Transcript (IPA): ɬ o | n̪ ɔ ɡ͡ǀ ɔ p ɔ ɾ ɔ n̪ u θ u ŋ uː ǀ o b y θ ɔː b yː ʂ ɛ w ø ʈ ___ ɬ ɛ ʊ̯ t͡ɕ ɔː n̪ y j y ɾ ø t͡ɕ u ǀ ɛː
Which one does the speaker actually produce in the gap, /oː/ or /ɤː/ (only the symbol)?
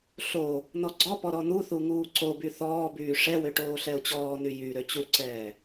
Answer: oː